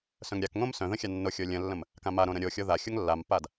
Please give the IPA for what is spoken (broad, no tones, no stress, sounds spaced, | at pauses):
s œ̃ ŋ ɾʲ a k ŋ õ m s œ̃ ð ə̃ xʲ a nː o xʲ o lʲ ə̃ lː ə̃ m | k ã m a ɾ õ ɾ ə̃ ɾʲ o xʲ o ð a xʲ o ŋ lː a m pː a d